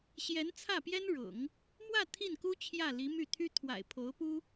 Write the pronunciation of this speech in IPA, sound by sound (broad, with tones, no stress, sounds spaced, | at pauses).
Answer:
ɕ j ɛ˧˥ n t͡sʰ ä˥˩ p j ɛ˥ n ɻ ʊ̰˨˩˦ ŋ | m w ä˥˧ t̪ʰ i˥˩ n k u˥ t͡ɕʰ j ä˥˩ l i˧˥ m y˥˩ t̪ʰ y˥ t̪ʰ w a̰˨˩ ɪ̯ pʰ o˧˥ ʊ̯ p u˥